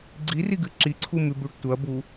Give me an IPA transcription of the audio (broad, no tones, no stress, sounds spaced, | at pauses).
ɡ͡ǀ i r i ɡ ɨ ǁ i ǀʰ u m ʉ b ʉ ɖ tʷ ɐ b u